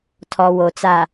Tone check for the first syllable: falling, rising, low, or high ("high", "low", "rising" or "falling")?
low